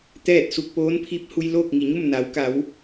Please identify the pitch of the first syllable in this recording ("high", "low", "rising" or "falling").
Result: falling